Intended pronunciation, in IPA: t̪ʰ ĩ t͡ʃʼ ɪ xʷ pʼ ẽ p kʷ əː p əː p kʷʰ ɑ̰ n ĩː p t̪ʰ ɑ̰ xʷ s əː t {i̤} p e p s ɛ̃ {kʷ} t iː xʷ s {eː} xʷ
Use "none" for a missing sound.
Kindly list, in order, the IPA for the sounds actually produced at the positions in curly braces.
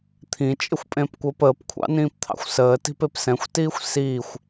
i̤, xʷ, iː

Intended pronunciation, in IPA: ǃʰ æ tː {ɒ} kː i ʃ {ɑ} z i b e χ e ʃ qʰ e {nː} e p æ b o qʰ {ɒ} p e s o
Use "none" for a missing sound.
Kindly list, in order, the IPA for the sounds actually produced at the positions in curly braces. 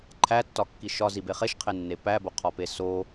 ɒ, ɒ, nː, ɒ

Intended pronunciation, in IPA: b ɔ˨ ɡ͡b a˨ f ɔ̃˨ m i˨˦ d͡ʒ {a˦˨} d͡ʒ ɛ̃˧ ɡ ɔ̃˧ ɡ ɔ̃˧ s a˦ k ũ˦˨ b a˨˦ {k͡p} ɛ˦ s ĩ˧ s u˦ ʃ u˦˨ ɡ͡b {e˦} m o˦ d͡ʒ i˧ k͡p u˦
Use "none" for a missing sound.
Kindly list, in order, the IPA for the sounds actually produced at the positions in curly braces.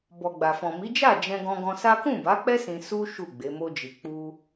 a˦˨, k͡p, e˨˦

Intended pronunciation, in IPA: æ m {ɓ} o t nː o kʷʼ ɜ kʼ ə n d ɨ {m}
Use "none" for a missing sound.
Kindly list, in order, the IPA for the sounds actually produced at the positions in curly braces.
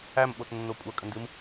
ɓ, m

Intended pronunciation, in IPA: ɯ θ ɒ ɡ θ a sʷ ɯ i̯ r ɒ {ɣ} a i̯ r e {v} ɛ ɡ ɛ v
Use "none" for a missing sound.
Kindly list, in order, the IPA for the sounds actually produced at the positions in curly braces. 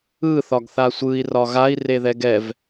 ɣ, ð

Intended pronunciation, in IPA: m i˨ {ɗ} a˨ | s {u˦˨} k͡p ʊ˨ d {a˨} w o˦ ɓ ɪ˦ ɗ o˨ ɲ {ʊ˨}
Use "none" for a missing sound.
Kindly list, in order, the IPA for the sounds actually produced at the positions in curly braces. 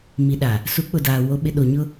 ɗ, u˨˦, aː˨, ʊ˦

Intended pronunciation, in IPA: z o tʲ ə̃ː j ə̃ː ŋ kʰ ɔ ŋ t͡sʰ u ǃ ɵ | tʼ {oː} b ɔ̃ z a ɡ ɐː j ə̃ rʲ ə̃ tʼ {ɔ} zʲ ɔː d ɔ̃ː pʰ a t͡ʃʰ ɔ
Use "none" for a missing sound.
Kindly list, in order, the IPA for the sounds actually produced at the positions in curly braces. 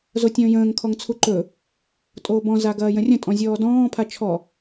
oː, ɔ̃

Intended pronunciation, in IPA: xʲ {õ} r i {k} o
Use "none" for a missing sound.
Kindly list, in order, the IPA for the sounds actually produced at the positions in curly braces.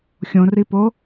õ, p

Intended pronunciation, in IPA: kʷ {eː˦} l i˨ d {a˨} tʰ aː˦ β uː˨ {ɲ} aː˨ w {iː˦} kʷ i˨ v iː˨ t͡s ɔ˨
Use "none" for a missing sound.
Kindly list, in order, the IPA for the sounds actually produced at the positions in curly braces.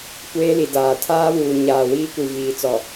eː˦, aː˨, ɲ, iː˦

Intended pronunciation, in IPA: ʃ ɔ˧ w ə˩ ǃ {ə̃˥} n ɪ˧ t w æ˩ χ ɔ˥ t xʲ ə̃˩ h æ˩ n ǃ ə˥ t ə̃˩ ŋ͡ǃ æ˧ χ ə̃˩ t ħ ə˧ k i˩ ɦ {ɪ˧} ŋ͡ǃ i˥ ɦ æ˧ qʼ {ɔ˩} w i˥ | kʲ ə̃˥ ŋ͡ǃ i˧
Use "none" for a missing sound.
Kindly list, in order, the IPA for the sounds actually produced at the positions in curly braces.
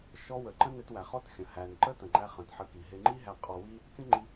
ə̃˥, ɪ˧, ɔ˧

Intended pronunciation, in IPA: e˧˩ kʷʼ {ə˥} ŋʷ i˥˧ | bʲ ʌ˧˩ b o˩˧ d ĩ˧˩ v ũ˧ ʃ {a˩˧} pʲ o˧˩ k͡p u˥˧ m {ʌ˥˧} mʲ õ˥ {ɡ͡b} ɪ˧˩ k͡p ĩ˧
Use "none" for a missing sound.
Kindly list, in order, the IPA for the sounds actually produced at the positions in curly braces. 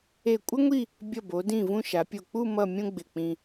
ə˥, a˩˧, ʌ˥˧, ɡ͡b

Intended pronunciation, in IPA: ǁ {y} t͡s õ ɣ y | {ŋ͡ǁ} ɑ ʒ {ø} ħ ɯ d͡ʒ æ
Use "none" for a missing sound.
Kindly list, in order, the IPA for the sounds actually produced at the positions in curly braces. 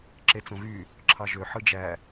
e, ǁʰ, ø

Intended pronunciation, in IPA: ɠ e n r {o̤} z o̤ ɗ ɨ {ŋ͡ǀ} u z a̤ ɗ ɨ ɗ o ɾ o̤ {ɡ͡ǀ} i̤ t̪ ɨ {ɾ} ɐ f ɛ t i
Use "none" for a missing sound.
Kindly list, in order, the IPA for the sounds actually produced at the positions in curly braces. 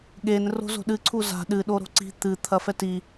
o̤, ǀʰ, ǀ, t̪ʰ

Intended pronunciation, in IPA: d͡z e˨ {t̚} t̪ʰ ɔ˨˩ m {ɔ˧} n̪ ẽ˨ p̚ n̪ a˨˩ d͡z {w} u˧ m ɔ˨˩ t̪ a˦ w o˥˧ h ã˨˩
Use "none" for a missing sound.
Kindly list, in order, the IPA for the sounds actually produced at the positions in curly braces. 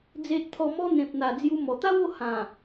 t̚, ɔ˧, j

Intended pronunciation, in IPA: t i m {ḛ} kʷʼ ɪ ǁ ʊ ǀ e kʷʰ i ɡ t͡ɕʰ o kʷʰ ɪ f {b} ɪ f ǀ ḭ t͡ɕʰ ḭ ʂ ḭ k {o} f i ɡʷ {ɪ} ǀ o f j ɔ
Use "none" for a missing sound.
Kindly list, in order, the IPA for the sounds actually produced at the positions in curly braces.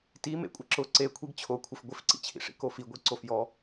ḛ, ɡʷ, o, i

